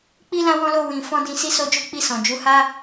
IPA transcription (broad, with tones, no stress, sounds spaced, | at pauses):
k͡p i˦ l ã˦ w ɔ̃˦ l o˦˨ w ĩ˨ f ɔ̃˧ d ĩ˨ s i˧ s o˧ d͡ʒ o˦ k͡p i˦˨ s ɔ̃˨ d͡ʒ u˨˦ h a˦